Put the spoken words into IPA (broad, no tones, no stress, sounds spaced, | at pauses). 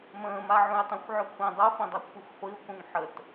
m ə̃ː m a ʕ ũ j tˤ ẽ xʷ ʕ ø kʷʰ ĩ dˤ u f ĩ dˤ e kʷʰ ʌ xʷ χʷ i o̯ k ũ ŋ ħ ə t